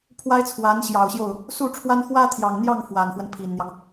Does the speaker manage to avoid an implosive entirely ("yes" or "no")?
yes